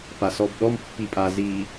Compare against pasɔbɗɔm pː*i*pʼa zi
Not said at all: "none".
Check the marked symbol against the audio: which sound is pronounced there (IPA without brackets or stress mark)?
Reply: i